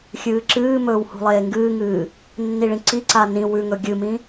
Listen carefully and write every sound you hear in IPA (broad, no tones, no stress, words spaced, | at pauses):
xʲɨːǁɨːmɵːw hṳlˠeːŋɡɨːŋɨː | nːiɭĩǀiǀa nĩ wʉŋɵ ɡʲɨmĩ